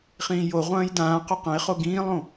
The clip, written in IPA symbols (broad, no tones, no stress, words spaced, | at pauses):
χĩːjoʁʷɐ̃ːj dãː qɵqɐ̃ɪ̯χo ɡĩːlˠõ